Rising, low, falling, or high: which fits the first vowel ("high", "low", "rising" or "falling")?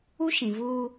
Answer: high